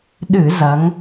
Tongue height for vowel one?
high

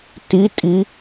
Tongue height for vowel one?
high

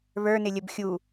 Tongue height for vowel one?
mid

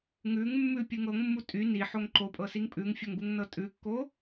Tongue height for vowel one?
high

